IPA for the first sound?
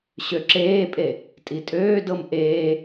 ɕ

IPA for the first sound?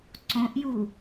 ǀ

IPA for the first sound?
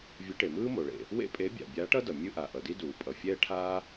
vʲ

